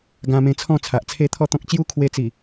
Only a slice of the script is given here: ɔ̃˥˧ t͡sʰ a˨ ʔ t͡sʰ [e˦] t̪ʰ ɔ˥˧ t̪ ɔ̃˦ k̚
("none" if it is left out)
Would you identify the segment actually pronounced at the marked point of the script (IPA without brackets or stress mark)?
e˦